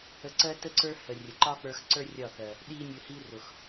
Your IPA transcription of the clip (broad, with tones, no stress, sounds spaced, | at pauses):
ə˧ ǀ ɜ˦ t ə˦ ǀ ə˞˦ h ə˨ rʲ ə˨ ǃ ɒ˦ k͡p ə˞˧ x ǀ ə˞˦ rʲ ɒ˦˨ θ ɜ˨ | ɗ i˦ nʲ ʊ˧ h i˦ r ʊ˨ x